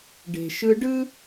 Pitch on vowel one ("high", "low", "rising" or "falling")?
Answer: low